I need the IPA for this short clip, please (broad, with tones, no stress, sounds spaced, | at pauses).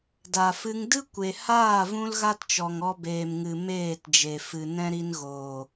d a˨ f ɨ˧ ŋ d ɨ˦ kʷ e˨ h aː˦˨ v ũ˦ l ɣ a˦ t t͡ʃ ɔ˨ ŋ ɔ˧ b eː˨ m ŋ ɨ˨ m eː˦˨ t d͡ʒ e˨ f ɨ˨ n ɛ̃˦ ɾ i˧ n ɣ oː˨